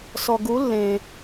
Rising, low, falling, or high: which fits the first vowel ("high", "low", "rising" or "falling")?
low